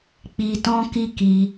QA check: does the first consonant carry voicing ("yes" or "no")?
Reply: no